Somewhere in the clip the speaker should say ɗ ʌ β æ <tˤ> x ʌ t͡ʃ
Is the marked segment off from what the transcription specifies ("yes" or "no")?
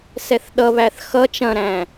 yes